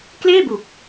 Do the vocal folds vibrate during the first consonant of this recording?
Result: no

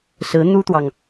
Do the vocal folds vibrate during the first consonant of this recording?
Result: no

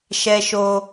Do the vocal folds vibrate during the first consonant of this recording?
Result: no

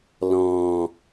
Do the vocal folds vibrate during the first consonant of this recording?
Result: yes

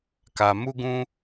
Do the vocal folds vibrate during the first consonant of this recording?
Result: no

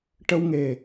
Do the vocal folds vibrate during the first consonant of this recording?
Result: no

